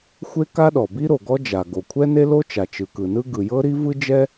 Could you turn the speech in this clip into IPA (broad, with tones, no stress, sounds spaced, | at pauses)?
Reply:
xʷ e˥ k a˥ ɗ ɔ˩ b i˥ ɾ o˩ ɡ ɔ˥ d͡ʒ a˩ ɡ o˩ kʷʰ ɛ˥ n e˥ l o˥ t͡ʃ a˩ t͡ʃ ɯ˩ k ɯ˩ n ɯ˥ ɡ ɯ˩ j ɤ˥ ɾ i˥ v ɯ˥ d͡ʒ ɛ˥